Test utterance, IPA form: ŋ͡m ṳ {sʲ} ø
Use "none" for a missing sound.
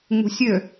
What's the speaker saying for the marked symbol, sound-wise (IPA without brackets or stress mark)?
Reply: sʲ